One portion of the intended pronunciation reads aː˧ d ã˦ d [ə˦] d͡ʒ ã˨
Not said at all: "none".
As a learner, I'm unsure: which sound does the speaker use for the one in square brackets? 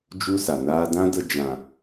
ə˧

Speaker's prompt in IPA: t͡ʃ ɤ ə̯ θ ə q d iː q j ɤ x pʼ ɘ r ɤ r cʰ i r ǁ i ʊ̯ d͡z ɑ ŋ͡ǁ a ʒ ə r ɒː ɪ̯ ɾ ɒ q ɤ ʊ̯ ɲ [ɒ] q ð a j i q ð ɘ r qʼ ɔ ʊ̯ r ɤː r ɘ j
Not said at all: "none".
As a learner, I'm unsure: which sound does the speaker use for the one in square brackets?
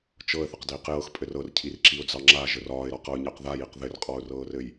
ɑ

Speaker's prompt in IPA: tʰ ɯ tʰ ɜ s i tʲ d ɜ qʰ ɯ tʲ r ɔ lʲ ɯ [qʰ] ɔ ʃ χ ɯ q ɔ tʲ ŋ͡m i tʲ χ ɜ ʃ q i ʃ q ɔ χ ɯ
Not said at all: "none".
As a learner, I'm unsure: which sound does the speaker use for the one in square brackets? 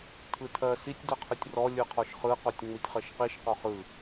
qʰ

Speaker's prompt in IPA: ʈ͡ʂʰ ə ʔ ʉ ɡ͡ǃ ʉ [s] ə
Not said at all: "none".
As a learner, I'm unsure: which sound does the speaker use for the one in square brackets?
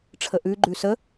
s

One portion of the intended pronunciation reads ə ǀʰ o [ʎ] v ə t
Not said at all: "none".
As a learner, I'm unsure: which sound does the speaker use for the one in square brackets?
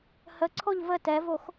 ʎ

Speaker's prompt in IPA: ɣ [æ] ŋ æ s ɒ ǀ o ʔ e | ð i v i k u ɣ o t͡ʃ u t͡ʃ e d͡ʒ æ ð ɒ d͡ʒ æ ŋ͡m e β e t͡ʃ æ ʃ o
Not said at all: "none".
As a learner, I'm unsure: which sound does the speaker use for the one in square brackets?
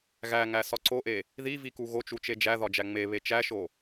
æ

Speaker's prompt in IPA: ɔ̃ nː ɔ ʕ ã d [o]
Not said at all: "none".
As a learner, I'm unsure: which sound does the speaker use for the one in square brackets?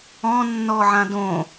õ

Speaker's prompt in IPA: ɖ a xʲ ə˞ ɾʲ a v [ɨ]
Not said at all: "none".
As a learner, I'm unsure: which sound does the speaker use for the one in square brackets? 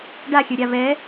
ɛ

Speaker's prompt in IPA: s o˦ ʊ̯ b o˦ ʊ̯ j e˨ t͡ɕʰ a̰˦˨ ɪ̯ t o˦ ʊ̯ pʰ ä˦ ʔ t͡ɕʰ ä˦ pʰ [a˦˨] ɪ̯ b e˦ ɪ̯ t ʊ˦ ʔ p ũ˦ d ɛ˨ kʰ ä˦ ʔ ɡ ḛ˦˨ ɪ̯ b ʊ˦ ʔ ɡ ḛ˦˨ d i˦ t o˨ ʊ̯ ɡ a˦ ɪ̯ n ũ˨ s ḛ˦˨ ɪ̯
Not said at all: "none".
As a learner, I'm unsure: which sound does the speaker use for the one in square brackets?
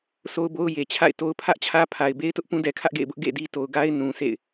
a˨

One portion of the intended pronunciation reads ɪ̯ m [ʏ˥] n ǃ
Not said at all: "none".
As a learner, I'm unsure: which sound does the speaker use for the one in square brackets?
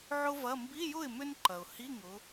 ʏ˥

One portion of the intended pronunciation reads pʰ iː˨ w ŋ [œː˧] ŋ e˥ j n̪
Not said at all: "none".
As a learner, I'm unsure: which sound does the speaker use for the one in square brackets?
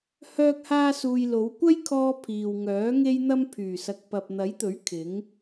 œː˨˥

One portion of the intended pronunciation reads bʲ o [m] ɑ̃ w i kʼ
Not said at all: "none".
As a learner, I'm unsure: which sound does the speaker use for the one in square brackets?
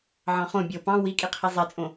p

